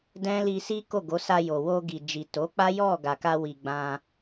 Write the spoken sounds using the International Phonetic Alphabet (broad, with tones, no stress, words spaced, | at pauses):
dɛ̃˦li˧ si˦ko˦˨ ɡo˨˦sa˧jo˨ wo˧ɡi˨d͡ʒi˨ to˨˦k͡pa˦ jɔ˦˨ ɡa˨ka˧wi˨ ɡ͡bã˧